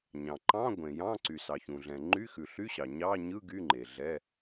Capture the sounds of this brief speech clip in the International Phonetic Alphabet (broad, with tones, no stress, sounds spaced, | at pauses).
ɲ ɑ̃˩ ǃ ɑ̃˧˥˧ ɡʷ ẽ˩ j ɑ̃˧˥˧ ǀ y˩ s ɑ˩ ç ũ˩ ɮ ɛ̃˩ ŋ͡ǃ y˧˥˧ x ʉ˩ ɬ y˧˥˧ ɕ ɑ˩ ɲ ɑ˧˥˧ ɲ ɯ˧˥˧ ɡ y˧˥˧ ŋ͡ǃ e˩ ɮ ɛ˧˥˧